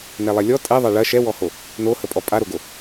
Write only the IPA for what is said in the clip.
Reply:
nɛlˠɛlʲɔ tʼɛ ðˤɑɭɐ ʃɛwɔho | nohəpʼɔ pʼaɾoɡo

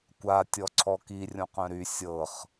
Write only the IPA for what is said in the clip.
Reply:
kʷa tʲɔǀʰɔki rʲõqœ̃ɾy sʲɤχ

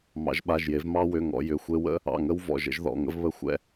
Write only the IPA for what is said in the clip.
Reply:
mɑ̰˩˧ʒɓa˩˧˩ʒje˩˧v mɑ˦wʏ˩˧˩ŋɔ̰˩˧ jʏ˩˧˩xʷe˦ wə̰˦ | ɑ̰˩˧˩ŋə˦w vɔ̰˩˧˩ʒə̰˦ʒðɔ̰˩˧˩ŋə̰˦v βə˦ xʷɛ̰˦

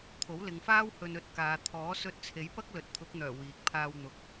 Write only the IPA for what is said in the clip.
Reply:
t̪ʰo˨˥wlɪ˨˧ŋfaː˥w hɵ˧nɵ˧t̚kaː˨˧ t̪ʰɔː˨˥sɵ˧t̚t͡sʰe˨˥jpɐ˥k̚ lɵ˨˥t̚t̪ʰʊ˨˥k̚n̪œː˨˩ wiː˨k̚pʰaː˧w n̪ʊ˨k̚

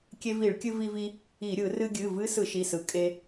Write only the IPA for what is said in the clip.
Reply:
kʲe˧vi˧˩˧ɭkʲɨ˧ vi˧vi˧ | i˧˩˧ɾʲɯ˧˩˧ rɨ˧ɡʲɨ˩˧˩ vɨ˦˥sɯ˧˩˧ʃi˩˧˩sɯ˩˧˩ kʼe˧

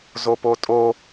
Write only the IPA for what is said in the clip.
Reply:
zopotʼo

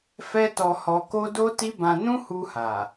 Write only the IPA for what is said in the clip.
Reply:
fɛ˦tɔ˧hɔ˧ko˦ do˦ti˦bã˧ nũ˦hu˧ha˨

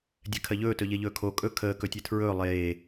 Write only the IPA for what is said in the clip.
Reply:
dʲɛkʰɜʎɵː tɵʎeʎɵːkʰo kʼɵ kʰəː kɵtʲetʰɹɵː lˠeː

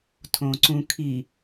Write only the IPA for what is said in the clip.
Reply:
tʰõǀũkʰi

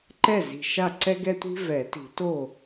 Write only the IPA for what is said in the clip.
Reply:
ǃɛ˥˩zi̤˨˩ ʃa˥˩ǀɛ˥ɡɛ˥tʷi̤˥ vɛ˨˩˦ti̤˨˩˦to˥˩

